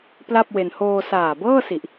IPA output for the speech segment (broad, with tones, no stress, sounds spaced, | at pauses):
p l a˥˩ p̚ w e˧ n h oː˧ s aː˨˩ b ɤː˥˩ s i˨˩ ʔ